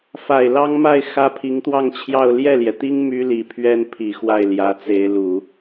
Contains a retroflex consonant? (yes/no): no